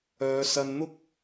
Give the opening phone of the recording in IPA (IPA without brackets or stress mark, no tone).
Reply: œː